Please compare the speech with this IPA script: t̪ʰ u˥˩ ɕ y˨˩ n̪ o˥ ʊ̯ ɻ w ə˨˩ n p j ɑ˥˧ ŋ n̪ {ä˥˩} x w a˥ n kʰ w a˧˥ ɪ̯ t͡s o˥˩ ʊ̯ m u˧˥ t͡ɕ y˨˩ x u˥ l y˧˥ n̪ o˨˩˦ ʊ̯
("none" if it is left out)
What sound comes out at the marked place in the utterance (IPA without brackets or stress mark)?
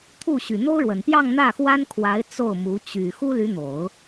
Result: ä˥˩